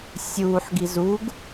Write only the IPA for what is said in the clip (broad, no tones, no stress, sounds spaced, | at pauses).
sʲ uː ħ ɡ i z u ɡ